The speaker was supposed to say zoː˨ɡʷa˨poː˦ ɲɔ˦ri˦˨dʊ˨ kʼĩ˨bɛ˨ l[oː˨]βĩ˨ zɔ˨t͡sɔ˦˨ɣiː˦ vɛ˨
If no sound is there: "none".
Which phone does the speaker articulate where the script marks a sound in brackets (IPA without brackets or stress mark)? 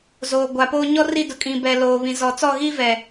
oː˨